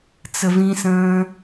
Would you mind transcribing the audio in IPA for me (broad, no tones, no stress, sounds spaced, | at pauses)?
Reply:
t͡s ə v ĩ s ə̃ː